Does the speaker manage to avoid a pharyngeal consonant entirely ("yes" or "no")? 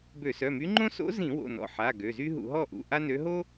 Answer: no